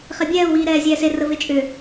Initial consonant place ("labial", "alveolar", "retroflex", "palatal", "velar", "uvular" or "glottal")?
uvular